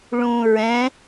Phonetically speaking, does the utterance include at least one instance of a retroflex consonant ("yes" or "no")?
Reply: yes